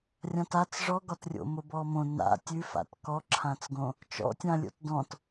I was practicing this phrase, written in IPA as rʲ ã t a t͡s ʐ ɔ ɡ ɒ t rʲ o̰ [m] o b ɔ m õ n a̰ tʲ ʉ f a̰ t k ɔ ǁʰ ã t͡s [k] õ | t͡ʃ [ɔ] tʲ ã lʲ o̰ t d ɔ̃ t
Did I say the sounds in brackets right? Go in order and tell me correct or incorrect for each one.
correct, incorrect, incorrect

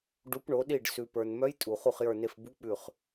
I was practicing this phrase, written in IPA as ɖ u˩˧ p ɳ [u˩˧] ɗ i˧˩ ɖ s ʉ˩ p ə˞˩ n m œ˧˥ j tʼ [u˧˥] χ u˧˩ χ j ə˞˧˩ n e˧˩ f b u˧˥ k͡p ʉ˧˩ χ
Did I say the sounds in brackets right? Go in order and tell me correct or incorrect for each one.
incorrect, incorrect

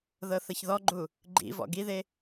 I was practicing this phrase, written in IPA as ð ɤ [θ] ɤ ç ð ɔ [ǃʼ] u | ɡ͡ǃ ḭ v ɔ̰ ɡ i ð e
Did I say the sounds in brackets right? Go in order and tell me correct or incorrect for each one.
correct, incorrect

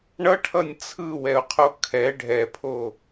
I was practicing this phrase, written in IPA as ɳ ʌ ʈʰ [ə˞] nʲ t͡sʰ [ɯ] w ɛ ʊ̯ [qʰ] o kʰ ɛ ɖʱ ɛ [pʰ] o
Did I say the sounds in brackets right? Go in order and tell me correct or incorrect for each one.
incorrect, correct, correct, correct

